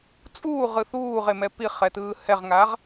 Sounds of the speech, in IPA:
t͡sʼuː ʁɯθuːʁemɛ piχɛtɯː hɛʁŋaʁ

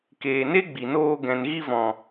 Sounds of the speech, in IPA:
keː˨ ne˦ɡ͡bi˨noː˧ ɡɛ̃˨nɣi˧vɔ̃˨

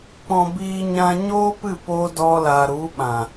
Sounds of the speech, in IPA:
k͡pɔ̃˧ biː˧ɲã˧ ɲoː˦pɨ˦˨p oː˦dɔ˦la˧ ɾu˨˦ ɓã˨

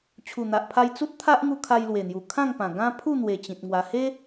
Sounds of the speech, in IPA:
t͡ɕʰu˨˩n̪a˨ʔpʰa˧j t͡su˦t̚t̪ʰa˦ʔŋu˧ kʰa˧jlwe˨˩n̪ju˨˩ kʰã˥˧ŋpã˨˩ ɡã˦ pʰu˥˧n̪we˨˩ t͡ɕĩ˨t̚ŋwa˧ he˦

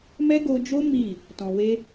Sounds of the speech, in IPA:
mɛ˦ ɡo˧d͡ʒo˦ mi˦˨ | tɔ̃˨we˧

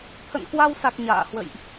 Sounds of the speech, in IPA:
t̪ʰə̰˧˨nkwa˧wsa˨˩k̚ ɲa̰ː˧˨hwə̰˧˨jʔ

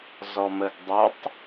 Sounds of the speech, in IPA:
zɔməɡdˤotˤ

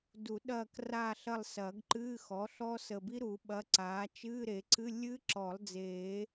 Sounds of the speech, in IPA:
du˨˩˦ ɗɐː˦˨kraː˦˨ɬɐ˦˨lˠ sɐː˨˩˦ɡǃɨː˧˥˧xɔ˩˥ɬɔ˦˥ sə˨˩bi˦˥ɾu˨˩˦ ɓɐ˧˥˧ǀaː˩˥ t͡ʃɨː˧˥˧ɾe˨˩˦ǀɨ˧˥˧ lʲɨ˦˥ǁɔ˨˩˦lˠ d͡zeː˨˩˦

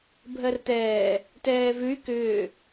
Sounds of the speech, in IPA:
bʱɜrt̪ɛː | tɛːvʉy̯ kʏː

